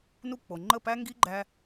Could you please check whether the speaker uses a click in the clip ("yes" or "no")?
yes